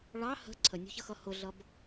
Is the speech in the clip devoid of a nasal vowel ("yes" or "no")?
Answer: yes